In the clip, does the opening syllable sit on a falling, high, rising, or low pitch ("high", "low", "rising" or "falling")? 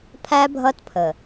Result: high